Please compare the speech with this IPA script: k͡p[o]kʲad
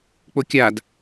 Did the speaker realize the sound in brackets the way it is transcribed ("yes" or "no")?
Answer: yes